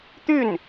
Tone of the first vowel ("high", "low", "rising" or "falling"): falling